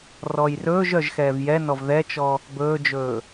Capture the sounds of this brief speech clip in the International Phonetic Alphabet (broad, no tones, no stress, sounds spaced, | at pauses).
r ɔ j r ɵː ʒ œ ʒ x ɛː v j ɛ n ɔ v ð ɛ t͡ʃ ɔ | b ɵː d͡ʒ ɵː